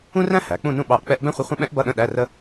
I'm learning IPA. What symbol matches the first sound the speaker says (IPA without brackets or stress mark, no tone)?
ũ